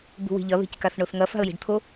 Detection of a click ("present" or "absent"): absent